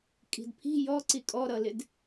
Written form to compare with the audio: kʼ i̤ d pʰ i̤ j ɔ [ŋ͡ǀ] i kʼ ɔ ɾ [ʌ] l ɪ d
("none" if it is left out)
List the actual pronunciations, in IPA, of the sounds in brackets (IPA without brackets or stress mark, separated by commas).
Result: ǀ, ʌ